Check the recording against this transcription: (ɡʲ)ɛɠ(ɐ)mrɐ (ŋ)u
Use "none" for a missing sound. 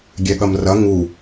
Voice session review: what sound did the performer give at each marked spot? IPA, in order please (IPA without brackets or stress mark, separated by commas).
ɡʲ, ɐ, ŋ